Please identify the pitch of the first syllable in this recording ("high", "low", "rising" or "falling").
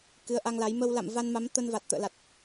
rising